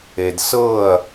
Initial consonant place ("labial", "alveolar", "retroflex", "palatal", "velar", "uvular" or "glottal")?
alveolar